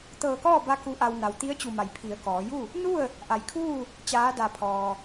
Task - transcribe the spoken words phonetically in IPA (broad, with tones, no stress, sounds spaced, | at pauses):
t̪ ɤː˧˩ k ɔː˥˨ b a˧ k u˧˥ ʔ a˧ w n a˩ w t̪ i˧˥ ə̯ t͡ɕ u˧˩ m a˩ j pʰ i˩˧ ə̯ k ɔː˩˧ j u˥˨ | n u˥˨ ə̯ | ʔ a˩ j kʰ uː˥˨ | t͡ɕ aː˧˥ d a˧˩ pʰ ɔː˩